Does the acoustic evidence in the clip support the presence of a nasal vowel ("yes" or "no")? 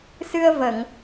no